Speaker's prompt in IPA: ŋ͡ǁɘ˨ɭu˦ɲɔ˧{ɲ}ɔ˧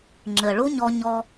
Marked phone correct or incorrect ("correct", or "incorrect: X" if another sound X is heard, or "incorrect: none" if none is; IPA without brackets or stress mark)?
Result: correct